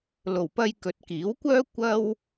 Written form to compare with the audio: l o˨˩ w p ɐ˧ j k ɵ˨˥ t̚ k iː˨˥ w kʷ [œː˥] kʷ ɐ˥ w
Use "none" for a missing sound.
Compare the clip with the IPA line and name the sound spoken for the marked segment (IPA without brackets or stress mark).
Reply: œː˥